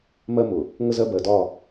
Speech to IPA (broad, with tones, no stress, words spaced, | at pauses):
mɜ˦mʊ˨ | ŋə˦zɜ˦ bɜ˨dɒ˦˨